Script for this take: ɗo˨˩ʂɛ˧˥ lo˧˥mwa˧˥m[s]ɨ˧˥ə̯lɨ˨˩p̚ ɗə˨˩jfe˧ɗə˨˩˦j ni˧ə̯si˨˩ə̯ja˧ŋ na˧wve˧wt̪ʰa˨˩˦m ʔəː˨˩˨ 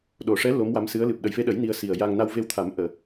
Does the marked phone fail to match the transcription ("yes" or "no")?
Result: no